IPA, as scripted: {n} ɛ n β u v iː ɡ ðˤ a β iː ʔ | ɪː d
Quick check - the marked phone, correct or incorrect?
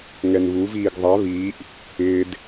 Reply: incorrect